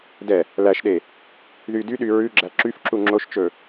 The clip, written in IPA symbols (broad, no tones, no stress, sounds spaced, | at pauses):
d ɛ | l æ ʃ ɗ e | ð y d y ɗ y ɹ ʉ ɡ͡ǁ æ ǁ y f ǁ u ŋ͡ǁ o ʃ t͡ʃ ɵ